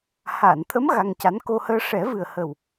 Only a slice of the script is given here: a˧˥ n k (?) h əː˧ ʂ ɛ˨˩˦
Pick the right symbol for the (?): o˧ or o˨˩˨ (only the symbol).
o˧